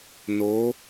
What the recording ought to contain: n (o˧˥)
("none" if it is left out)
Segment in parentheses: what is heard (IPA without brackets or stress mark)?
o˧˥